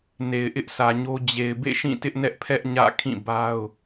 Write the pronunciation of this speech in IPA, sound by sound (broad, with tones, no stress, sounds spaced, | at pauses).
n e˨ ɪ̯ ʔ ɪ˦ ʔ sʰ ä˨ ɲ o˦ d͡ʑ e˨ ɪ̯ b ḛ˦˨ ʃ ĩ˦˨ t ɪ˦ ʔ n ɛ˦ ʔ pʰ ɛ˦ ʔ ɲ ä̰˦˨ kʰ ĩ˦˨ b a˦ ʊ̯